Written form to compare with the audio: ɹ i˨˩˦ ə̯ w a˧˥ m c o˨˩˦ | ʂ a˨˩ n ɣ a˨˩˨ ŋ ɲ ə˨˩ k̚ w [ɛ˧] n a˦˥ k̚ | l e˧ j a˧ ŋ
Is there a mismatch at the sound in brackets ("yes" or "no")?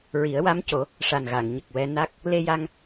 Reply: no